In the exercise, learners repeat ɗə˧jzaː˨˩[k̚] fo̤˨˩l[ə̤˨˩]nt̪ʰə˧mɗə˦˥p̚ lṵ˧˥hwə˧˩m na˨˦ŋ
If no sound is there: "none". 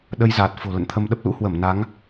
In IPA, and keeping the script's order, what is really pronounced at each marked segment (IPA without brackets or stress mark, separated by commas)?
t̚, ə̰˧˨